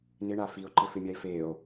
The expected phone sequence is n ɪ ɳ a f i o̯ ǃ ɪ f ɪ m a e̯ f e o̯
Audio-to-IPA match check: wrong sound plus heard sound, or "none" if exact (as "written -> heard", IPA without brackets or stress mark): m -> mʲ